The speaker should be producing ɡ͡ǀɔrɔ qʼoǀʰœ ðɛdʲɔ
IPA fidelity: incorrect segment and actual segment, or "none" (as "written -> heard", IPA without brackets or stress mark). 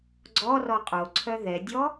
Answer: none